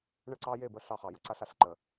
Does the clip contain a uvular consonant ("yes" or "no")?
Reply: yes